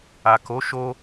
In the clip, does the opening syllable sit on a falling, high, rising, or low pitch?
low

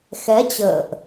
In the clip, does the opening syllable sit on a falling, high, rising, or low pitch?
rising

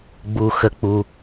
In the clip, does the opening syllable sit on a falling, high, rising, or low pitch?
low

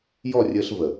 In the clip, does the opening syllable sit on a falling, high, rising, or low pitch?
falling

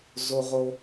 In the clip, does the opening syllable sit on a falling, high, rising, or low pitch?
high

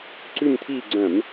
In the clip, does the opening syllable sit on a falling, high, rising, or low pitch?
falling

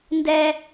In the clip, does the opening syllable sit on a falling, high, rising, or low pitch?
high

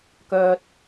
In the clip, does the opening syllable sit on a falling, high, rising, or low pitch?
low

